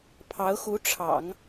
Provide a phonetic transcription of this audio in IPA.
pʰɑ˧˥ʊ̯xu˧˥ʈ͡ʂʰɑ̰˨˩˦ŋ

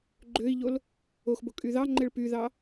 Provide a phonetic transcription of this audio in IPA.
ɡ͡ǃøi̯ʎol | oxbokʼy ðɑŋ͡ǃeɭ pyðɑ

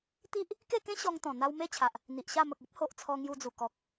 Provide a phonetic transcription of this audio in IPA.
t̪i˦ʔ | ke˥˧kẽ˦ ɕɔ˧ŋ t̪ɔ̃˨˩n̪a˧w me˦t͡ɕʰa˨ʔ | n̪i˨ʔɕa˥˧ mə˨k̚e˦p̚ho˨ʔ t͡sʰɔ˧ŋju˧d͡zu˨˩ kɔ˨k̚

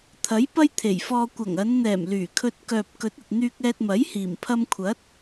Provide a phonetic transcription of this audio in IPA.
t̪ʰɐ˨˥j pɐ˥jt̪ʰe˨˩jfɔː˧ kʷɐ˨˩ŋɐ˨˧nn̪ɛː˨˩m lyː˨˩kʰɵ˧t̚ kœː˨p̚kɵ˨˥t̚ɐ˨t̚ n̪yː˧k̚ɛː˧t̚mɐ˨˥jhiː˨˩m pʰɐ˧mkʷʰɐ˨˥t̚

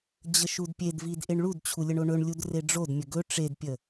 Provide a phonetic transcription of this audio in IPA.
d͡ʑəʃudpʲedvid ʔeɳɭudt͡ɕʰu lʲəɳoɳɵɳlʲud reɖ͡ʐodmʲə ɡɵ ʈ͡ʂedpʲə

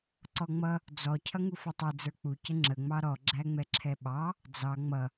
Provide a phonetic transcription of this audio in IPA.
ǀɔŋ͡mʌ | d͡zɔ cʰʌŋufɔtˤɛ d͡zə˞k͡pu cəŋ͡ǁə ŋ͡mɑɾɔ ɡ͡ǁæŋ͡mɛǁʰɛɓɑ | d͡zɑ ŋ͡mʌ

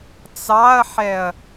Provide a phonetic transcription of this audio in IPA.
t͡sɑɐ̯ħɛɐ̯

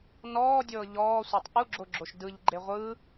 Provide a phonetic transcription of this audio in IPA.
nɔːdʲɤː ʎɔːsʷetˤ ʔuɡ͡ǁoɡ͡ǁoʃ dɯʎɡ͡ǃe ʁʷɯː

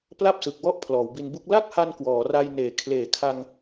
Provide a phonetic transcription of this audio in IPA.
pla˥˩p̚sɯ˨˩k̚wɔ˥˩ʔ pʰlɔː˩˦wbi˧nbu˥˩k̚ la˥˩k̚ha˧n kwɔː˩˦ra˧jneː˩˦ kʰleː˨˩kʰa˧ŋ

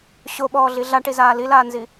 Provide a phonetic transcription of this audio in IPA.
ɕoɓɔːɮi ɮaʈizaː lilaːnzi

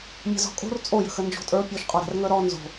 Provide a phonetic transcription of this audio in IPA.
mʲə̤zɔ̤kʼo̤r t͡sʼojə̤xə nd͡ʒo̤tʼə˞ pʲoʃqʼɔɾa̤rŋə˞ ɾɔ nzo̤

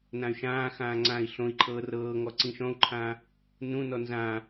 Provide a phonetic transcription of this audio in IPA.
nãy̯ʃãːxãː ŋ͡ǀãːi̯ɬõi̯ǃʰɤː rɤːŋɔ ǀĩʃɔ̃u̯ǃʰãː | nũnɔ nzãː

